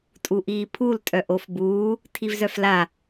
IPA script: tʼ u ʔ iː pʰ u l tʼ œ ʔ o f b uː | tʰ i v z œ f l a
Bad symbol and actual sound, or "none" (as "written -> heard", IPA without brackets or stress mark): none